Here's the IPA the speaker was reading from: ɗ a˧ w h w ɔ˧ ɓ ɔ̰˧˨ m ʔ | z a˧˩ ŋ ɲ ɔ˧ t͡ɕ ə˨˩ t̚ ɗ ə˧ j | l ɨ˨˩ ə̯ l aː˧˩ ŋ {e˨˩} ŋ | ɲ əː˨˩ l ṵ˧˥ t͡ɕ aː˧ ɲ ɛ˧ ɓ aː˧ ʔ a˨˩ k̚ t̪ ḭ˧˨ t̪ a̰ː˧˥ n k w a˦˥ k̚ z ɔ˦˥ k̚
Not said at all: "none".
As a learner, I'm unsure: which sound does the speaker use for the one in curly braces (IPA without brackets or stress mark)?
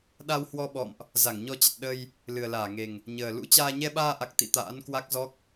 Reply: e˨˩